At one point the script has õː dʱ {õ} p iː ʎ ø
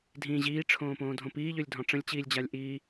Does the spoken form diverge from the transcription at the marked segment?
no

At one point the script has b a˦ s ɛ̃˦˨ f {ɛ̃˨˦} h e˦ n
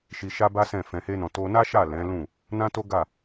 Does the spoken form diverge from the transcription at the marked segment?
yes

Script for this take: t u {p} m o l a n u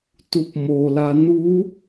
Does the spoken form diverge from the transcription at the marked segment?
no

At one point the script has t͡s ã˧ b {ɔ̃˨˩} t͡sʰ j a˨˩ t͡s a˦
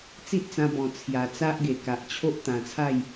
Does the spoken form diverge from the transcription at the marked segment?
no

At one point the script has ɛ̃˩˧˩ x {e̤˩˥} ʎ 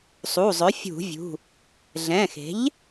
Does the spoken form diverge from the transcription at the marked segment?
no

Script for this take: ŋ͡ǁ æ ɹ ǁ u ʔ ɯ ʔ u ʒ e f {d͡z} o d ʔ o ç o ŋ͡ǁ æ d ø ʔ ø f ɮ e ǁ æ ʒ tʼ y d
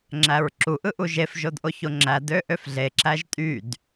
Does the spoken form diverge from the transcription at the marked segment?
yes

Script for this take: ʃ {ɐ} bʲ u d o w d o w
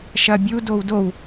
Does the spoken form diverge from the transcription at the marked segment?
no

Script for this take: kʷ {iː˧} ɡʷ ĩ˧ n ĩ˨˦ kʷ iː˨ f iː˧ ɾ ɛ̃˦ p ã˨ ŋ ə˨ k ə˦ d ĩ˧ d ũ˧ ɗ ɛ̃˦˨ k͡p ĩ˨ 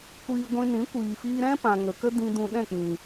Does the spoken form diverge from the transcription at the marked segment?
no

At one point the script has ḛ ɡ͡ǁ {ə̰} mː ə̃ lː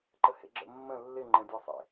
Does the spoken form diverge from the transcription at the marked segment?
no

